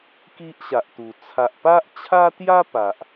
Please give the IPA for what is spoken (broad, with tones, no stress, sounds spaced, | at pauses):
k i˦ ʔ ɕ a˨ ʔ t̪ u˨˩ t͡sʰ a˨ ʔ p a˦ ʔ t͡ɕʰ a˦ t̪ j a˦ p a˨ ʔ